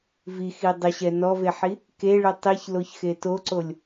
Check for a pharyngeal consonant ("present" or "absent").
present